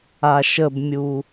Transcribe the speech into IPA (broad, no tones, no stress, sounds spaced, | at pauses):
a ʃ ə b mʲ u